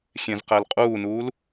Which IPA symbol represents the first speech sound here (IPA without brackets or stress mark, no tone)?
xʲ